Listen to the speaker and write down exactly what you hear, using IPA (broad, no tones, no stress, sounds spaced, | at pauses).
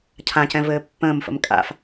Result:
cʰ ã c ɛ̃ v ɘː pː ə̃ː m f ə̰ m kʼ a̰ f